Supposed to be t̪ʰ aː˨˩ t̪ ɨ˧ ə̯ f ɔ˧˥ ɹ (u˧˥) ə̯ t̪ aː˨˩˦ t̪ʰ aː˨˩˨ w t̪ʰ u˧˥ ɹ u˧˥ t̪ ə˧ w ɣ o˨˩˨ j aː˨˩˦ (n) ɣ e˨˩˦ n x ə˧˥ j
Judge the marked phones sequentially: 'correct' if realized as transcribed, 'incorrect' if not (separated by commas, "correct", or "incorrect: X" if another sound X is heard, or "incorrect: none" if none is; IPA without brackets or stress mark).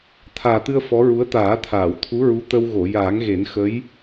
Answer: correct, incorrect: ŋ